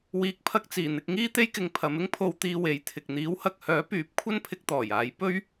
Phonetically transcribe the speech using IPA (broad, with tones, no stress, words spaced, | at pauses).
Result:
wiː˨˥k̚pʰɐ˧k̚t͡siː˨˩ n̪ɪ˧k̚ŋiː˥t̪e˥jkɪ˧ŋ pʰɐ˨˧mɪ˥ŋpʰo˧wt̪iː˧ we˨˥jt̪ʰɪ˨k̚ n̪iː˨˥whɐ˨k̚hœː˨˥pyː˨˥p̚ kʷʰɐ˥npʰɪ˧k̚ t̪ɔː˨˩jaː˨˧j pɵ˥ɥ